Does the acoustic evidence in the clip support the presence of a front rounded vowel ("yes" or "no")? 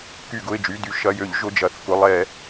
yes